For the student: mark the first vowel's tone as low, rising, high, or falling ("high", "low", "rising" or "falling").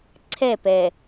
falling